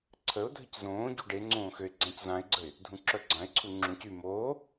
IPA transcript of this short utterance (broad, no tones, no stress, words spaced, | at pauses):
ǀʰəʊ̯ dʱəczõːɟu ɖeŋ͡ǀõːxøɪ̯ ɡ͡ǀãczãɪ̯ɡ͡ǀəɪ̯ | dʱũǁœɡ͡ǀãɪ̯ǀʰu ŋ͡ǁũc y moː